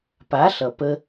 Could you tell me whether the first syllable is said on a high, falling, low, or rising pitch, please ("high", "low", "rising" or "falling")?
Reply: rising